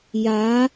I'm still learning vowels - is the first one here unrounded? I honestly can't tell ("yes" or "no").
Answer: yes